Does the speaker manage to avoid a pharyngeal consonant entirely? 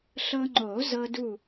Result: yes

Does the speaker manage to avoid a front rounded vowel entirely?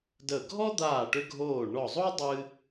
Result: no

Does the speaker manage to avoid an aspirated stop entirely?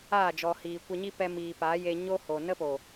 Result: yes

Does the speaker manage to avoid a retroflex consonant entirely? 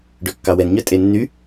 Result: no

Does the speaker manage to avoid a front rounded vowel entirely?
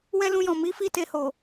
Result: yes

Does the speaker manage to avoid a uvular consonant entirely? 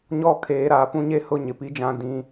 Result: yes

